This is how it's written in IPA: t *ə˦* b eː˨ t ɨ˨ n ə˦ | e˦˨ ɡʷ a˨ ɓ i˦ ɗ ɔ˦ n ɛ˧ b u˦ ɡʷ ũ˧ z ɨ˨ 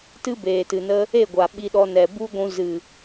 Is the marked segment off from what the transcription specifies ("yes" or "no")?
yes